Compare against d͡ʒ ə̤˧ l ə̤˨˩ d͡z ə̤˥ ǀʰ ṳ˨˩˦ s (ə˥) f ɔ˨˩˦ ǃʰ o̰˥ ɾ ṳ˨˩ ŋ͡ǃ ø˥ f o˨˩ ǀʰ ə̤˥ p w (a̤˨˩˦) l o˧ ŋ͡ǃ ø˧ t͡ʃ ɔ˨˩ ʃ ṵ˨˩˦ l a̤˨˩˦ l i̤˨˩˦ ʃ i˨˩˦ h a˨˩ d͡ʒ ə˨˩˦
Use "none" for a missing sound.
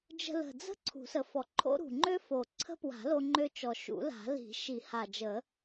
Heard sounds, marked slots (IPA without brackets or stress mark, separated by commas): ə˨˩, a̤˨˩˦